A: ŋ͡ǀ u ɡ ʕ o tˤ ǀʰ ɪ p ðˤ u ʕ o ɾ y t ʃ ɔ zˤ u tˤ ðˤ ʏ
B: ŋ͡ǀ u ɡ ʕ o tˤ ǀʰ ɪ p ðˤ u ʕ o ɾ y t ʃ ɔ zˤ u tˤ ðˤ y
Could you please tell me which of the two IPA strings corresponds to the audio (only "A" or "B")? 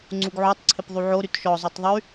B